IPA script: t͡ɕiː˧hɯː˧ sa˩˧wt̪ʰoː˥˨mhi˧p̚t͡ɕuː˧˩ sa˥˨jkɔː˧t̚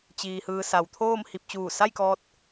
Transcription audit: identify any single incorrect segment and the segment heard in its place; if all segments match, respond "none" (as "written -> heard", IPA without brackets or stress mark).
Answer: none